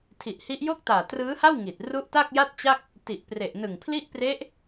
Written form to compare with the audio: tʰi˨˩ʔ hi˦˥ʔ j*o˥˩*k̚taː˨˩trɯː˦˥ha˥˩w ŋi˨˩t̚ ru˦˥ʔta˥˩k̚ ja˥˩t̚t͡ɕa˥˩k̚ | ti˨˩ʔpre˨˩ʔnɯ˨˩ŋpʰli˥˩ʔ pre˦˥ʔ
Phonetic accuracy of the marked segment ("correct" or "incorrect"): correct